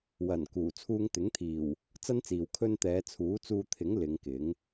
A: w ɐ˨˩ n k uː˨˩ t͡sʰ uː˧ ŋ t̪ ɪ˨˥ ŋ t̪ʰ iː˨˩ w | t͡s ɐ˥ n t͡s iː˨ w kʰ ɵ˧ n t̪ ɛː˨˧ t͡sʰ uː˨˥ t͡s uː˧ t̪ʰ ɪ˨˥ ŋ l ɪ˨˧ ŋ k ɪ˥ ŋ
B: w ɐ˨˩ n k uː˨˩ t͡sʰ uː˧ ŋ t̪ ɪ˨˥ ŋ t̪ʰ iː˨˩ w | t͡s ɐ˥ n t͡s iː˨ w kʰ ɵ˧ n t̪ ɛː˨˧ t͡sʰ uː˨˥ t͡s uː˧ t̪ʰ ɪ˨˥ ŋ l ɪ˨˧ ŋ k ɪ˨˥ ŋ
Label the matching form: B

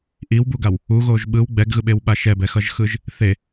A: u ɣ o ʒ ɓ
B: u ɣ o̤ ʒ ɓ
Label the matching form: A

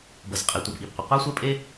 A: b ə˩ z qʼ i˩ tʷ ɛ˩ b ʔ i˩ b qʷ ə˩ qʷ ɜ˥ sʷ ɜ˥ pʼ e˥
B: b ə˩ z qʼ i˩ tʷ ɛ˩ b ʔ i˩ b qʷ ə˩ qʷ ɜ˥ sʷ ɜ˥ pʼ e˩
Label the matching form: A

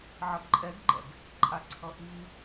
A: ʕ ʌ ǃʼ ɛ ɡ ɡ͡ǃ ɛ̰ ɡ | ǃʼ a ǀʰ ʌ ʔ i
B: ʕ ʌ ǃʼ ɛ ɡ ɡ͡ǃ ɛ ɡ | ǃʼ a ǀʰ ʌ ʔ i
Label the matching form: A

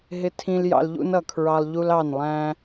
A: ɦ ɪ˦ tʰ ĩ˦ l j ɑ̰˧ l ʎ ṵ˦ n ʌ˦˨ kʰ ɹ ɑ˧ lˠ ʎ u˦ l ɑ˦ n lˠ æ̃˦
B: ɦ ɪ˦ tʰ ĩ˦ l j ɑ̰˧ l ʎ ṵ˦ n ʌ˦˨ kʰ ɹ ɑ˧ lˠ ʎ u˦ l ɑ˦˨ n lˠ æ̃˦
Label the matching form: B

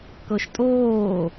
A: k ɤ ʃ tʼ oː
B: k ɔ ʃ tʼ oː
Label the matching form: A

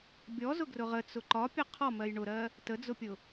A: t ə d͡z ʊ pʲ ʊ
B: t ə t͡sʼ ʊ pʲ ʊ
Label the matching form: A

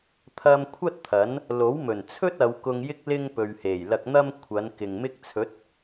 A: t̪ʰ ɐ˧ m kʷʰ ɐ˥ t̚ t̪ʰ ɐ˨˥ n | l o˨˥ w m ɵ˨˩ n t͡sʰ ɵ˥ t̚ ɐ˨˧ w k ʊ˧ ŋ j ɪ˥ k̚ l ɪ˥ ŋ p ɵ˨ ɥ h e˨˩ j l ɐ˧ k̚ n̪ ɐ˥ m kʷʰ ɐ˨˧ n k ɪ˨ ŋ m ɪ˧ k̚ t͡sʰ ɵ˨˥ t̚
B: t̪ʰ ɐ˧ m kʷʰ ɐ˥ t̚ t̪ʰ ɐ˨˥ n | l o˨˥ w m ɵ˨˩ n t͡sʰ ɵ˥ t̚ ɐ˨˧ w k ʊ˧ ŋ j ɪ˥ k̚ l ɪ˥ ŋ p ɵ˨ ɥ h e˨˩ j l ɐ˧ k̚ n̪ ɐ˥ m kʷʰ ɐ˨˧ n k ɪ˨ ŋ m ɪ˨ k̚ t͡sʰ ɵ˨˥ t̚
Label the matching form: A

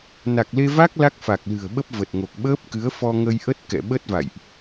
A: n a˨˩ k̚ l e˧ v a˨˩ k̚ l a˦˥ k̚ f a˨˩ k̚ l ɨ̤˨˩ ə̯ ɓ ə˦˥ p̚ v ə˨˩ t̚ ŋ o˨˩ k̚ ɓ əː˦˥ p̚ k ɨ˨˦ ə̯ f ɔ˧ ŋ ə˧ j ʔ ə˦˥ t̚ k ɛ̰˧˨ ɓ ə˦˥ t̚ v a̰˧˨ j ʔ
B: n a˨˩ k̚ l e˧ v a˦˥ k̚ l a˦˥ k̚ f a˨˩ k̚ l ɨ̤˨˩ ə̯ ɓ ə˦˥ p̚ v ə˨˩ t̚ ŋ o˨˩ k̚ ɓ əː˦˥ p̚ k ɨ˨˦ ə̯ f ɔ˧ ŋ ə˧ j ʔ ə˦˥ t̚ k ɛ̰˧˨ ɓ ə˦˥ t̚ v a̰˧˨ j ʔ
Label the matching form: B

